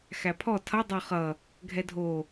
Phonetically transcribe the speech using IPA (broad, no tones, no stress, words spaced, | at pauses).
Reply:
xæpʰɔ tʰʌ dˤoχʌ | ɡʱɛdʱo